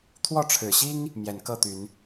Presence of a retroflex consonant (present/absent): present